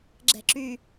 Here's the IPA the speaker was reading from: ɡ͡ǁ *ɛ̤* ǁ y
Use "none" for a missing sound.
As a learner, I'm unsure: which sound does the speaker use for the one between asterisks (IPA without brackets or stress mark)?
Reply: ɛ̤